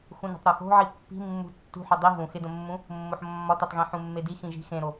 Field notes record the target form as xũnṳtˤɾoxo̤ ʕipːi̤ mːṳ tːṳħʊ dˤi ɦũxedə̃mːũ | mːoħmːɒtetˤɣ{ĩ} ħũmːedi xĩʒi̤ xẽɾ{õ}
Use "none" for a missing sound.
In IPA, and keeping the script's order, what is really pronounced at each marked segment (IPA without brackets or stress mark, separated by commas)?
ĩ, o